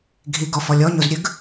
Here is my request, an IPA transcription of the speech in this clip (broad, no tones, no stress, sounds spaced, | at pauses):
ɡʱ i ɡ ɔ f ɔ lʲ ɔ ɲ o z ɾʲ ʉ ɡ